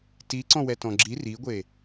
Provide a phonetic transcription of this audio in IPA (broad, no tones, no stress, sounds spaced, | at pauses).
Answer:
t i ǀ ɔ̃ w ɛ t ɔ̃ ɡ͡ǁ i r i ɡʷ e